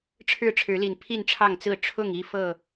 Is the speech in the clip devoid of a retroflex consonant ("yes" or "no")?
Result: no